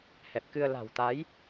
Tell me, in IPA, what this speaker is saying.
h ɛ˨˩ p̚ k ɨ˧ ə̯ l a̤˨˩ w t̪ a˨˦ j

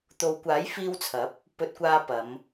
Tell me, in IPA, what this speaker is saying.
t̪ o˨˧ w kʷ aː˨˥ j f iː˧ w t͡sʰ ɐ˨˥ p̚ | p ɵ˧ t̚ kʷ aː˧ p ɐ˨˧ m

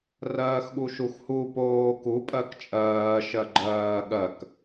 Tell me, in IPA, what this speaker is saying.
r ɜː x ɠ u ʃ u x h u p oː k u pʼ ɜ k t͡ʃʼ ɜː ʃ ɜ ɡ͡ǃ ɜː ɠ ɜ k

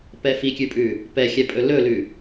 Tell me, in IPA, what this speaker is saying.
p ɛ f i kʲ ʉ pʼ ʉ | p ɛ xʲ ɛ pʼ ɵ l ɵ l ʉ

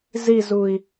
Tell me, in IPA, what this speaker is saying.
z i z u i̯

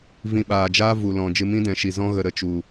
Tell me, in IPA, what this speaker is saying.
v ĩ˧ ɓ aː˨ d͡ʒ aː˦ v u˨ l ɔ̃˨ d͡ʒ ɨ˧ m ĩ˦ d ɛ̃˨˦ ʃ i˨ z ɔ̃˦ ɣ ə˧ ɾ ə˧ t͡ʃ u˨

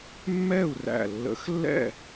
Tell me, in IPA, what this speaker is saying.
mː ɛ˥˨ u̯ r æ̰˧˩ lː ə̰˨˥ x lː ɛ̰˥˨

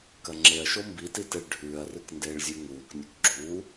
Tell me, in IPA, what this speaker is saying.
k ɐ ŋ͡ǁ e ɐ̯ ʃ o m b i t i t e ɭ ɖʱ ʉː ɐ̯ r ɨ k n d eː ɭ zʲ ʉ ŋ uː k nʲ ɨ k ɡ͡ǁ u

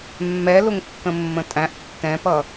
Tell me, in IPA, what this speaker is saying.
mː ɛ l ʊ ŋ kː ə̃ mː ə̃ tʼ æ̃ ʔ tː ɛ̃ p ʌ

